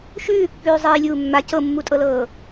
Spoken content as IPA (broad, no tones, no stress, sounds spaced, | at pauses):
ʃ ʉː kː ʉː zˤ iː lʲ uː mː a c ɤ mː u tʼ ɤ l ɤː